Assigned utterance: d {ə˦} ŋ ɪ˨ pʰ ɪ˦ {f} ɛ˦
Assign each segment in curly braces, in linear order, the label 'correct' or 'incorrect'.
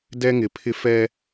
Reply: incorrect, correct

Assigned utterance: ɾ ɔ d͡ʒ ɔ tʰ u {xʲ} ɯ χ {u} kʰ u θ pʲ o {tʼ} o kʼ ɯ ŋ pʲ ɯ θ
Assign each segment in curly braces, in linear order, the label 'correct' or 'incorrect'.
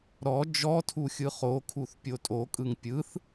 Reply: correct, incorrect, correct

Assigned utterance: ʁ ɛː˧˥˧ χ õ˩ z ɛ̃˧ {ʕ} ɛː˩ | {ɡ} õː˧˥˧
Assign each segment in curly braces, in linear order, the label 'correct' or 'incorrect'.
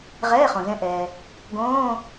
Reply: incorrect, correct

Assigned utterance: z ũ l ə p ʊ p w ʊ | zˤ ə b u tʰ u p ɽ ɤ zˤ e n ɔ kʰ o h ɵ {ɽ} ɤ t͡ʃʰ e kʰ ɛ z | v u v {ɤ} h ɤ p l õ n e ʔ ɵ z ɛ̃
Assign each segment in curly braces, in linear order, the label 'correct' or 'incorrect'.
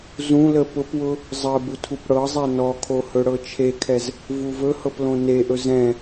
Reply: correct, incorrect

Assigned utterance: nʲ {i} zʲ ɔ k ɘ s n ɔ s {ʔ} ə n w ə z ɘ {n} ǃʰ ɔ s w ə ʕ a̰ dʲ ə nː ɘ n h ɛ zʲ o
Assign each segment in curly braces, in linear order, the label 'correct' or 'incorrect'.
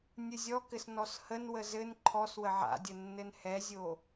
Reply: incorrect, incorrect, correct

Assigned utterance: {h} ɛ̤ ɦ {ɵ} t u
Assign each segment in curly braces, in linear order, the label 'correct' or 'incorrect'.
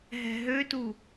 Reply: incorrect, incorrect

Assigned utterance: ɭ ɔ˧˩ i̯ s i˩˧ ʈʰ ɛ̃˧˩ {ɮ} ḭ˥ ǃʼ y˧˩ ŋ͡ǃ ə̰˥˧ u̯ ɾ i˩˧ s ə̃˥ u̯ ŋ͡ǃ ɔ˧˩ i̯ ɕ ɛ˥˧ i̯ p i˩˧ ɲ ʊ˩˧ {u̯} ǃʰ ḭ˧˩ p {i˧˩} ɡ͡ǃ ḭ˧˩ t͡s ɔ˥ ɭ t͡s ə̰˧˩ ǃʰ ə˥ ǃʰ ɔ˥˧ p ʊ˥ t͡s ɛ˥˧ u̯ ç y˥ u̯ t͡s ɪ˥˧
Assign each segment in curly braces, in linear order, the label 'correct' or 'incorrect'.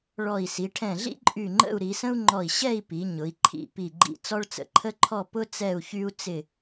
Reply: correct, incorrect, correct

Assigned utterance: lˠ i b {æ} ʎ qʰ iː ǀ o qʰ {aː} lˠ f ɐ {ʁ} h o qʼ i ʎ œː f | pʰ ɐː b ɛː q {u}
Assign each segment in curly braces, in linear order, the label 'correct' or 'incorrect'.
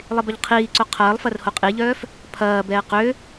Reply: incorrect, incorrect, incorrect, incorrect

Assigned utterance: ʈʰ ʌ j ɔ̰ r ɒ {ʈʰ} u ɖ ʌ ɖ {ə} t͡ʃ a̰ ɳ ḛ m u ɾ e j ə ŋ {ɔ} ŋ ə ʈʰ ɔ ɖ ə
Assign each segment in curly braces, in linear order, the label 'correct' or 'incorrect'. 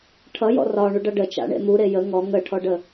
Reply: incorrect, correct, correct

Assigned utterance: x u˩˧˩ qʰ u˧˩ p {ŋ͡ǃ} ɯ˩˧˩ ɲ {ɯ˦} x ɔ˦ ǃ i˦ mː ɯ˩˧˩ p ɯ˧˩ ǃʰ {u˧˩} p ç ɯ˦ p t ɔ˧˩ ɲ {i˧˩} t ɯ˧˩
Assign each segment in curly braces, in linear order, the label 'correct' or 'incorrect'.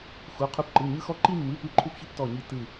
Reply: incorrect, correct, incorrect, correct

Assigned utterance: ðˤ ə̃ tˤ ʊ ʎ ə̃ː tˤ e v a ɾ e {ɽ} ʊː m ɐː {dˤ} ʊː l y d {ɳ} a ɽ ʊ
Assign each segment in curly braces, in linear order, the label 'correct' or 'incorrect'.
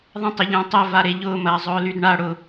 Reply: incorrect, incorrect, correct

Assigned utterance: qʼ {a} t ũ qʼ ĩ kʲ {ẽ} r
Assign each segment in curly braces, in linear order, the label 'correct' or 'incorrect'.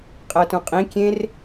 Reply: incorrect, correct

